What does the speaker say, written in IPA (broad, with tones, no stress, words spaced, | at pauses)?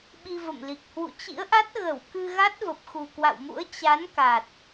ɓi˧və̰˧˨mli˨˩k̚ hwṵ˧˨t͡ɕḭ˧˥ə̯ʔa˦˥t̚ ɣə˧˩w kɨ˧ɣa˦˥t̚ və˨˩p̚xu˨˩kwa̰˧˨wmṵ˧˥ə̯ t͡ɕa˨˦n ka˨˩t̚